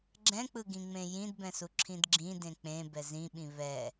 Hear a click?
yes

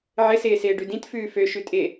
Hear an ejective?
yes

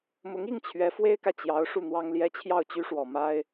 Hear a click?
no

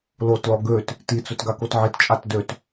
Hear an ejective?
yes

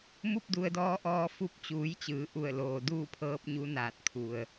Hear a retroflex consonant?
no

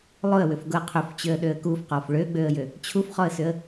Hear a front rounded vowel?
yes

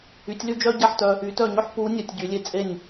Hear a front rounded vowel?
yes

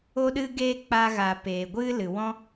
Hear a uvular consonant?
no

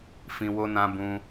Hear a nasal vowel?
yes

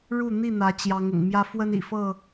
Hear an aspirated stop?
no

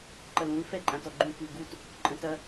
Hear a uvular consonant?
no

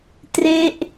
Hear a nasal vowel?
no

